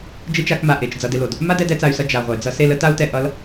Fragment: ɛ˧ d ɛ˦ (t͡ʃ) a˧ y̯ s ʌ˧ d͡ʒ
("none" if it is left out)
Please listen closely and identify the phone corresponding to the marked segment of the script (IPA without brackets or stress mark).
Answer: t͡s